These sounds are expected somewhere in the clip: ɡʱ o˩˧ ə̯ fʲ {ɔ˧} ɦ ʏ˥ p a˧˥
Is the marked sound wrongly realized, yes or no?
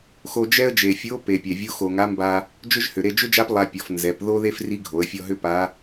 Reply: no